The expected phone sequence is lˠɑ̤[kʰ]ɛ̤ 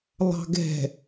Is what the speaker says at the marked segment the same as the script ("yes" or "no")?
no